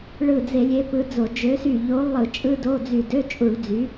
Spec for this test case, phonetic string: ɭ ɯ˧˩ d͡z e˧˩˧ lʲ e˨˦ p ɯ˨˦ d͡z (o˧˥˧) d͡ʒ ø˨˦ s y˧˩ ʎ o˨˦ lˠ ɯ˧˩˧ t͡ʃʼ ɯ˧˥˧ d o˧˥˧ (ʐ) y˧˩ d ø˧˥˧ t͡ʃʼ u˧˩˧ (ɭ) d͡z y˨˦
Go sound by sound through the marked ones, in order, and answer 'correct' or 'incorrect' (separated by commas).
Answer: incorrect, incorrect, correct